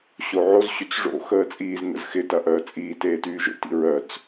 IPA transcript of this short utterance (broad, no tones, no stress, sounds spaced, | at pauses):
ɕ o ʕ o z ɕ y t͡s ʐ o̰ x əː t͡sʼ iː z n ə̰ z x ɪ t ɐ ʔ œː t͡sʼ iː t eː t yː ʒ o̰ t ḭ ɹ œ t͡s